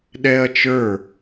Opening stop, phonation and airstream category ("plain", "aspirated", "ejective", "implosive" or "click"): implosive